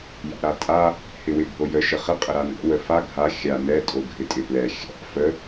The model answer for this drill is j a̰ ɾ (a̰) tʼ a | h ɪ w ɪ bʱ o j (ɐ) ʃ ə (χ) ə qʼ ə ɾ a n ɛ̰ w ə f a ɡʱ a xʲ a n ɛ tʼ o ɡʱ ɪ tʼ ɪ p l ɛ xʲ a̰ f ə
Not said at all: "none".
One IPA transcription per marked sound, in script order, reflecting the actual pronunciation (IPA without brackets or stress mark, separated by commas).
a, ə, χ